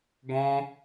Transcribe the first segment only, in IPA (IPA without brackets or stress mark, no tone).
ɡ